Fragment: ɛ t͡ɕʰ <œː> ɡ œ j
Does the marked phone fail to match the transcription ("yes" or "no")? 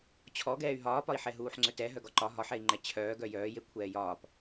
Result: no